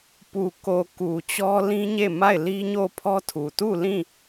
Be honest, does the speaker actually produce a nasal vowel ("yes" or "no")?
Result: yes